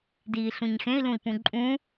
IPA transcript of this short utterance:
d iː ɬ ũ ɲ x ẽ i̯ l ũ i̯ p ũ ǃʼ ũ

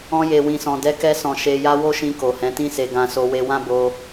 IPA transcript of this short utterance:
ɔ̃˧ j e˨ w ĩ˨ s ɔ̃˨ d ɛ˨˦ k ɛ˧ s ɔ̃˨ ʃ e˨ j a˧ w o˦ ʃ ĩ˧ k o˨ h ɛ̃˨˦ t ĩ˦ s e˧ ɡ ã˧ s o˧ w e˧ w ã˦ b o˧

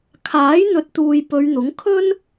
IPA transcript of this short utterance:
kʰ aː˨˥ j n̪ ɵ˨˥ t̚ t̪ uː˨ j p ɵ˨˧ ɥ n̪ ʊ˨˥ ŋ kʰ ɵ˥ n

